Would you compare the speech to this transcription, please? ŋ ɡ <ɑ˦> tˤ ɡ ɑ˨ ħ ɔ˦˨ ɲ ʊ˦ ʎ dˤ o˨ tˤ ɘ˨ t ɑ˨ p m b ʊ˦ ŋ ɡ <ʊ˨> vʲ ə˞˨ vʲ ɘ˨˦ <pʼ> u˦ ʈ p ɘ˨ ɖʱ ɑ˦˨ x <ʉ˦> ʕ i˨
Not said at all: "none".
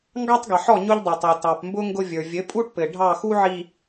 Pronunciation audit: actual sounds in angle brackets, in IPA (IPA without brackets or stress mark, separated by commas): ɑ˦, ʊ˦, pʼ, u˦